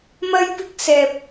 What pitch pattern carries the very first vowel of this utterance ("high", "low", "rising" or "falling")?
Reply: high